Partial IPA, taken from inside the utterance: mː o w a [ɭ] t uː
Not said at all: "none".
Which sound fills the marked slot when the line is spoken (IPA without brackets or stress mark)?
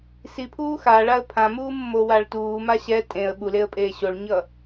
ɭ